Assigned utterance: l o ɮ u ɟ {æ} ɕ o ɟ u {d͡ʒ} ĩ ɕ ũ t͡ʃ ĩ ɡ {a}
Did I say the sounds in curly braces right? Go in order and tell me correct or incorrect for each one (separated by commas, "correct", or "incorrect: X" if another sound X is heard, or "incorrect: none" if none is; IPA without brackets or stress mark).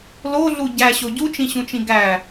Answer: correct, incorrect: t͡ʃ, incorrect: æ